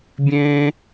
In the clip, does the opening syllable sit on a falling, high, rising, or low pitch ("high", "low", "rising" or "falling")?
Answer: high